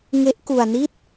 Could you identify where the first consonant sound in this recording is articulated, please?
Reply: velar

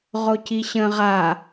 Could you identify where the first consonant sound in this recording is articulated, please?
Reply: uvular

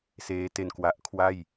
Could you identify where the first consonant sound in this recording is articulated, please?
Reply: alveolar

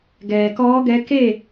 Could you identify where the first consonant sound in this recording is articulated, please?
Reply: velar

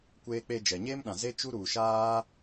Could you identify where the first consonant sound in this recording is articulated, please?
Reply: velar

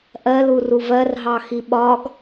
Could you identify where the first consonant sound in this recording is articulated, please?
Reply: glottal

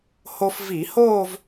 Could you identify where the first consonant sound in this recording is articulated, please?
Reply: glottal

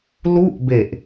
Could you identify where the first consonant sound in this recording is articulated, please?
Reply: alveolar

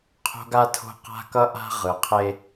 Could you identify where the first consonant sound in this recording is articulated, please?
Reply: uvular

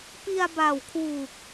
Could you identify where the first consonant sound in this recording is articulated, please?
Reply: labial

